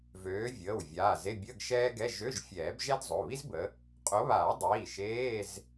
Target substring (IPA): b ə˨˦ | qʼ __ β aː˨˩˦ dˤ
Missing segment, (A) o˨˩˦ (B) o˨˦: B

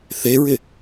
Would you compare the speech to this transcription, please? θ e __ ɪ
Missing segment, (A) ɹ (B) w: A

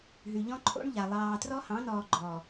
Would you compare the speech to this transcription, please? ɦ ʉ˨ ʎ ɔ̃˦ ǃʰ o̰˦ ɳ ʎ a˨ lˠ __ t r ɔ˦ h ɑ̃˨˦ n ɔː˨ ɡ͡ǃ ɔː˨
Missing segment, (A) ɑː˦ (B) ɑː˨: B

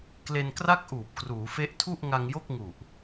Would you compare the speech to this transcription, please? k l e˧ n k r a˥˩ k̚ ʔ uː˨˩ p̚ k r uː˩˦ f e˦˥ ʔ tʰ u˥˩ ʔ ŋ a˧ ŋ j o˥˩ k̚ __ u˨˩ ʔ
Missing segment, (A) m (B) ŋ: B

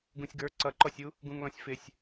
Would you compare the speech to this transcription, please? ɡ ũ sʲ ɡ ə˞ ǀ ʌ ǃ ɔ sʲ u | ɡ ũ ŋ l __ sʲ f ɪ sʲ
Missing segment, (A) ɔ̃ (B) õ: A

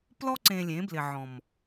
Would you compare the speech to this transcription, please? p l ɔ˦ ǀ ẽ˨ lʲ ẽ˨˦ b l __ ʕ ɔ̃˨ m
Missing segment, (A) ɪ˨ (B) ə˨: A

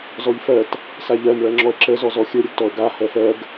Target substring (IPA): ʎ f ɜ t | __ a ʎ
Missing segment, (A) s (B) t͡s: A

